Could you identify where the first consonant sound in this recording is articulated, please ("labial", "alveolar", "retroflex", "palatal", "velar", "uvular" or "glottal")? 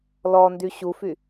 alveolar